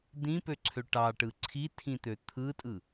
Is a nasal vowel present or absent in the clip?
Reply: present